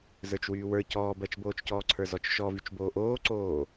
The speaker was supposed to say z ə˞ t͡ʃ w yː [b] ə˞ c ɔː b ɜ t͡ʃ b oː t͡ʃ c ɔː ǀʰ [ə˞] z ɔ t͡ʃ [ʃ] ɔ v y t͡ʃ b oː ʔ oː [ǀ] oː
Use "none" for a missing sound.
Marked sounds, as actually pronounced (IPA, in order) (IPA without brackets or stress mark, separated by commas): w, ə˞, ʃ, ǀ